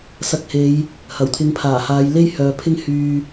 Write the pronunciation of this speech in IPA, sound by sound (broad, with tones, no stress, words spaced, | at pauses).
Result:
sɐ˧k̚he˨˧j | hɐ˨˩wt̪ʰɪ˨˧ŋpʰaː˨˩haː˨˧j le˥jhœː˨pʰɪ˥ŋ hyː˧